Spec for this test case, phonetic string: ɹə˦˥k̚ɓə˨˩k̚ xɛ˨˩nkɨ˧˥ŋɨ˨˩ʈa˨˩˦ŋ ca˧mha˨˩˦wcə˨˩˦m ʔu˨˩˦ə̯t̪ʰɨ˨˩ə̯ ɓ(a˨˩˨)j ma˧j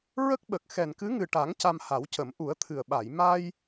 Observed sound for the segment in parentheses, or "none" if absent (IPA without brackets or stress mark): a˨˩˨